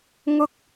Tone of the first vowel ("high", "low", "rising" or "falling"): high